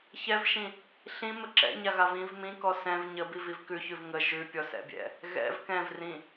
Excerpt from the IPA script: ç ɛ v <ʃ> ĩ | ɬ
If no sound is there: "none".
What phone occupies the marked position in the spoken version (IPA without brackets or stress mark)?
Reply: ʃ